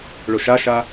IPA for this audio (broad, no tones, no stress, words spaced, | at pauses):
ɭoʃaʃa